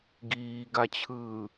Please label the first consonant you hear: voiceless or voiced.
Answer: voiced